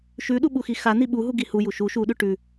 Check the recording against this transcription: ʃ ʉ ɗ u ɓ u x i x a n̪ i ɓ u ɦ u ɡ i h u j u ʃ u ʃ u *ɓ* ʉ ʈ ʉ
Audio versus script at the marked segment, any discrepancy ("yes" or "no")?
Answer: yes